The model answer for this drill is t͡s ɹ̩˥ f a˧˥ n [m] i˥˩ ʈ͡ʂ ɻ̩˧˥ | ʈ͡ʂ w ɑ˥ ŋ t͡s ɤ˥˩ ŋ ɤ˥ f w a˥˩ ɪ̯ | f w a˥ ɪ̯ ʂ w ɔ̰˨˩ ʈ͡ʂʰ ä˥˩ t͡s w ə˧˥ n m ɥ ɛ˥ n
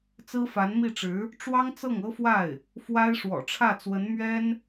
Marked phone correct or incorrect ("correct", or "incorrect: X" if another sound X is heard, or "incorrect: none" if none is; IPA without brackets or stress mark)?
correct